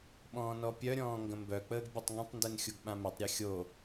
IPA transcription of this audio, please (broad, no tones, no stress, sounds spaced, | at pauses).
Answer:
ɓ ɔ̃ː n ɔ pʲ œ ɾʲ ɔ̃ː ŋ ɡ ə̃ m b œ k͡p əː ɡ bʲ u tˤ ŋ ə̃ tˤ n d e n xʲ u ɡ ɓ ã m œ tˤ ɾʲ e xʲ o